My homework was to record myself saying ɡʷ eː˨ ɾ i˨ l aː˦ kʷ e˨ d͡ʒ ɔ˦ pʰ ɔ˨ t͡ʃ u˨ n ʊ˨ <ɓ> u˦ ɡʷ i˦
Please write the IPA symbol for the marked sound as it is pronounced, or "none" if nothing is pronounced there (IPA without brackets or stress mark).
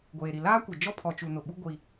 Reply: ɓ